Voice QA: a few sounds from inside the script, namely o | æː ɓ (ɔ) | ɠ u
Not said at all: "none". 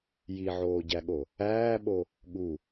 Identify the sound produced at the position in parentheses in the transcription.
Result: o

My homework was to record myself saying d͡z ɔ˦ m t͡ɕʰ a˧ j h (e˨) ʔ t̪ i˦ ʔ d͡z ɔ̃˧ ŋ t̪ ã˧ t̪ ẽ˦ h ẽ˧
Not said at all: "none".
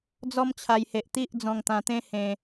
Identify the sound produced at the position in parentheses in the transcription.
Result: e˨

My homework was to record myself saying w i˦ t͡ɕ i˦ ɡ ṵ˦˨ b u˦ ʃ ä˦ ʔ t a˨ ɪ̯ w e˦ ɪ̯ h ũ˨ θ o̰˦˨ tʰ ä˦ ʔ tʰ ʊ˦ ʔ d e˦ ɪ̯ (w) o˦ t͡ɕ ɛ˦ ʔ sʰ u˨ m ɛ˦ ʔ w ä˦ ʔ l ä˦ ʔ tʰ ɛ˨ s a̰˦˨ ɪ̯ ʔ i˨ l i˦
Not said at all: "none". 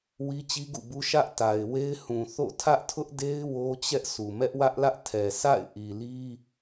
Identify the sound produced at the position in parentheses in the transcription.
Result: w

